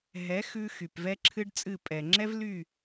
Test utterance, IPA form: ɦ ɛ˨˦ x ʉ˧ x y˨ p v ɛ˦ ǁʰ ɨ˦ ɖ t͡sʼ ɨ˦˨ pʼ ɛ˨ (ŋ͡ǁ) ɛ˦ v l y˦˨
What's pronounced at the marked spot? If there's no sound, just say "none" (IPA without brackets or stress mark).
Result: ŋ͡ǁ